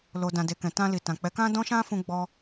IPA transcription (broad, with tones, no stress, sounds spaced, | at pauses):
l o˨ d ã˨ d e˨ k ɛ̃˨ t ã˧ l i˨ t ã˨ k͡p ɛ˨˦ k ã˦ d ɔ̃˦ ʃ ã˦ f ũ˧ ɡ͡b ɔ˧